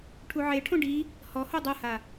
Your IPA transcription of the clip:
ʈʰ u ʕ e ʈʰ õ ɖ i | h ɔ h o dˤ ɤ h a

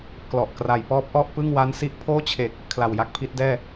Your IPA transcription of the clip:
k l ɔ˨˩ ʔ k r a˩˦ j p ɔː˦˥ p̚ ʔ ɔ˥˩ ʔ p ɯ˥˩ ŋ w a˦˥ n s i˦˥ ʔ pʰ oː˥˩ t͡ɕʰ e˨˩ k̚ | kʰ l a˨˩ w j a˥˩ k̚ pʰ i˦˥ t̚ d ɛː˥˩

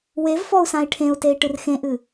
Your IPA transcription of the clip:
w e v f ɔ u̯ s ã i̯ ʈʰ ẽ u̯ t e i̯ ʈ ɨ r x ẽ ʔ ɨ

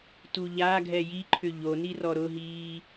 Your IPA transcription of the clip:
t u ʎ a ɡʱ ɛ j i ǃʰ ʏ ʎ o n i r ɔ ɾ ʊ ɦ iː

